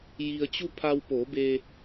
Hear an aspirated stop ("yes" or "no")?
yes